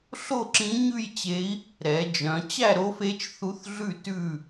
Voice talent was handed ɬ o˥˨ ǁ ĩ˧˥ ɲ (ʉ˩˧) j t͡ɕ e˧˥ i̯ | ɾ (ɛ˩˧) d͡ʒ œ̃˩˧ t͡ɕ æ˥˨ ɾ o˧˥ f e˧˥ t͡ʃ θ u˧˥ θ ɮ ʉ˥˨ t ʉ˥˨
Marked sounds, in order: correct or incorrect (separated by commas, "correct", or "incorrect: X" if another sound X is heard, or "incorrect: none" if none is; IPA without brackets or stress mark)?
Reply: incorrect: ʉ˥˨, correct